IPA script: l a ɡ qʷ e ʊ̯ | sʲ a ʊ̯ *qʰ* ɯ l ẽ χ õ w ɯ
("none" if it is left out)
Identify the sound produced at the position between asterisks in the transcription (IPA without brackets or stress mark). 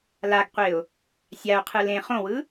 qʰ